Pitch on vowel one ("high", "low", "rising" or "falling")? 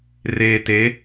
low